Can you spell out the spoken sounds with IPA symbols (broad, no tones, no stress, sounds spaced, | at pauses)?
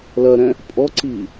l ɐ ɾ ɛ̃ | pʼ ɔ ǀ iː